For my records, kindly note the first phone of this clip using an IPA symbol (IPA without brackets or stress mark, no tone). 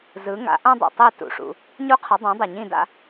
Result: z